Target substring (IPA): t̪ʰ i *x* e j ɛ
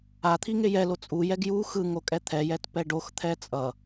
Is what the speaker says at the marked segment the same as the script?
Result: no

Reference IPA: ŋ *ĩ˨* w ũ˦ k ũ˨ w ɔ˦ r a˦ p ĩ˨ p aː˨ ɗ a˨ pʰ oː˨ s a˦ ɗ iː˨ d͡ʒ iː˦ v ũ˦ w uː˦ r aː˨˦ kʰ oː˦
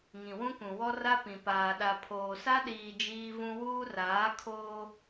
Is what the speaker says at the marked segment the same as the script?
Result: yes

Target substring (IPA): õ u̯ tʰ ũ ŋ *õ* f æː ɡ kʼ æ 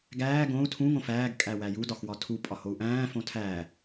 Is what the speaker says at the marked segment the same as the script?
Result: yes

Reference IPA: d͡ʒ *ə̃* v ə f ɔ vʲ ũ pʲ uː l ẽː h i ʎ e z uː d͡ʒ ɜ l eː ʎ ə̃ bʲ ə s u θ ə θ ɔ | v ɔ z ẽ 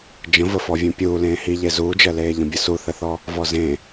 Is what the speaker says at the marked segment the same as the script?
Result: yes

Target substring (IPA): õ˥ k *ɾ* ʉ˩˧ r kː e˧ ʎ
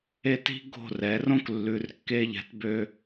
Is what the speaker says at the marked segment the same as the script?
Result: no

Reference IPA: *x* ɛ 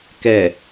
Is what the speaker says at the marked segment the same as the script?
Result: no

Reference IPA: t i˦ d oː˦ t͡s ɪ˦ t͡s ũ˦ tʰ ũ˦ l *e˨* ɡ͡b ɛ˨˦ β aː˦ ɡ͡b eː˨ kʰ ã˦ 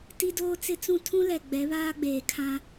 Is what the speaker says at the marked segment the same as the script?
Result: no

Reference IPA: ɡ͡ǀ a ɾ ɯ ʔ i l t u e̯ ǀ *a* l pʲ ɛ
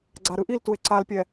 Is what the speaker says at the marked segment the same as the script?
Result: yes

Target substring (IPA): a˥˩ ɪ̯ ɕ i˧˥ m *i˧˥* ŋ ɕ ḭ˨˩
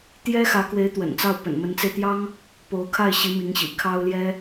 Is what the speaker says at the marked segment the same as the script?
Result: yes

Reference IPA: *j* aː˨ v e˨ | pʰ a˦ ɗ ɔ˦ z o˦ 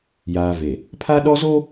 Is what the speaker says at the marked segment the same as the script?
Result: yes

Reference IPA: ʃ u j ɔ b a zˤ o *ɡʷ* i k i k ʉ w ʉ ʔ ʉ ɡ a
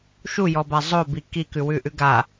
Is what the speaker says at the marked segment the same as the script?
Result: no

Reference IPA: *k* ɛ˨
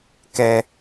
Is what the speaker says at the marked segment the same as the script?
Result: yes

